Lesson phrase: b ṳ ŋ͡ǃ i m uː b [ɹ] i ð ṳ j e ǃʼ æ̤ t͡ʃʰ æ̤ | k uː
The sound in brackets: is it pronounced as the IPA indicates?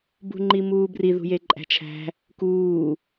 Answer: no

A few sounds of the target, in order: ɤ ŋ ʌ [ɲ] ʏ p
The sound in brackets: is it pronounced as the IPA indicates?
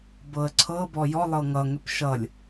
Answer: no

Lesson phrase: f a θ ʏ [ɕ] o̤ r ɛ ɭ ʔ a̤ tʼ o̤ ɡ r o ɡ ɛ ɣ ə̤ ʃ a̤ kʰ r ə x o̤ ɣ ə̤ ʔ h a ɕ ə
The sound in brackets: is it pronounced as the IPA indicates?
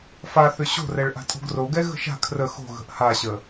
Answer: yes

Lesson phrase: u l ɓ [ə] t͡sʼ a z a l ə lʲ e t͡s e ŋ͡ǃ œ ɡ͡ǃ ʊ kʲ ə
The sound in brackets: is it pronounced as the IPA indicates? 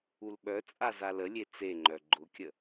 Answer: no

